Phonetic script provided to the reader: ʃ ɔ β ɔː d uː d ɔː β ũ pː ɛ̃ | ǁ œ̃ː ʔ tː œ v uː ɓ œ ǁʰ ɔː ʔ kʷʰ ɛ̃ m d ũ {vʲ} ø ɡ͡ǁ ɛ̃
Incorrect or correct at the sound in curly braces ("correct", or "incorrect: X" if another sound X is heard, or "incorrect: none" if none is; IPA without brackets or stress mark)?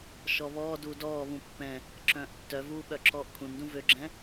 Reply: incorrect: v